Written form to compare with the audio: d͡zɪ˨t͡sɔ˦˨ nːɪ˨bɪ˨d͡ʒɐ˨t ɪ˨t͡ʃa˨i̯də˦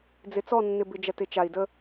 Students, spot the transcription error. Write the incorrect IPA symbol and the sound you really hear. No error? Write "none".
none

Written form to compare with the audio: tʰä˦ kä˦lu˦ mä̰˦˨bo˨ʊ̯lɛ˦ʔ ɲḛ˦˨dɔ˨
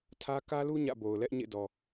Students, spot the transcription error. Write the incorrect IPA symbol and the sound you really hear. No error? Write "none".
m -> ɲ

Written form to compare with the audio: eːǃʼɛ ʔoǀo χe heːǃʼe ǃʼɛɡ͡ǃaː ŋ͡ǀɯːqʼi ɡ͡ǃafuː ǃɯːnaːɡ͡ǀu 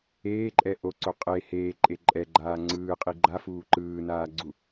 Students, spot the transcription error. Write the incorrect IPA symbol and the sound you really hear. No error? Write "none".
χ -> qʼ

